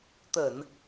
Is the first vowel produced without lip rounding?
yes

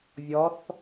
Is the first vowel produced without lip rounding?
no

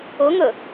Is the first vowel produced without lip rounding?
yes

